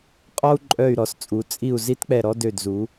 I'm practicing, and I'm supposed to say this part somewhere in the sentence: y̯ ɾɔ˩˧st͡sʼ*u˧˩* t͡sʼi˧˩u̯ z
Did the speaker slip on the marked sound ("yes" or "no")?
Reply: yes